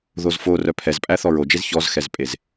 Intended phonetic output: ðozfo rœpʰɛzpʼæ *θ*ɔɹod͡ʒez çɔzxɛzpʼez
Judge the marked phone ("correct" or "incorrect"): correct